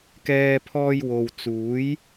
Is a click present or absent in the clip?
absent